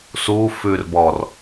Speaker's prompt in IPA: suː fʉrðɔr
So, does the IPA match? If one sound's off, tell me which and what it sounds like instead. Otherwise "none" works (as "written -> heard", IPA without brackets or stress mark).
ð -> b